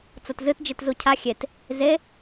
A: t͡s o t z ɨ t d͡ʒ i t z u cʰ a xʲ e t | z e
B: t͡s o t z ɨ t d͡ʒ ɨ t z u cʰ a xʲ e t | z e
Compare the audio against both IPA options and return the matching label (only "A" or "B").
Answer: A